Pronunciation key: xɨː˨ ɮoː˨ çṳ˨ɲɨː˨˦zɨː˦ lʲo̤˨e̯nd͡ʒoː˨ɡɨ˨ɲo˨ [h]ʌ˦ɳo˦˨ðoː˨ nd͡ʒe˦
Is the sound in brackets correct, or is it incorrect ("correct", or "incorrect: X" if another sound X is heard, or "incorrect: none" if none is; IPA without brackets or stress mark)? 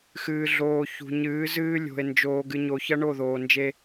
incorrect: ç